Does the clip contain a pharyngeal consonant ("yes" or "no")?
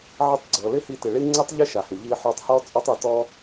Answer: yes